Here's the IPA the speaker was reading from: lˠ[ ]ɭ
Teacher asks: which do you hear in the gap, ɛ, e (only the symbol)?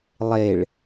e